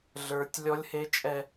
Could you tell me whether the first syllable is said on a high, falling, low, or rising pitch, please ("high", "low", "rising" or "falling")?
high